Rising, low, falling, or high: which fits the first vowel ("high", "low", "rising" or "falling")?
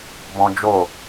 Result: high